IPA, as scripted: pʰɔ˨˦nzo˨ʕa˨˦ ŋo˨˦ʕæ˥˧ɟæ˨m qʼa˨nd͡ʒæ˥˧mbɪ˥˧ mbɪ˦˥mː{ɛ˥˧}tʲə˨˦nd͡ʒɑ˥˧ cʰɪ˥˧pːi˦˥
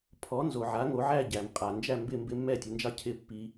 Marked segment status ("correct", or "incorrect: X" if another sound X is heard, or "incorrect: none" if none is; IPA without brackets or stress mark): correct